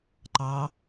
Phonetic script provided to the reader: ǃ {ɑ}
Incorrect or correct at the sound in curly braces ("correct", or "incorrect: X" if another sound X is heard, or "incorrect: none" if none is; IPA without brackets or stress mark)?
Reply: correct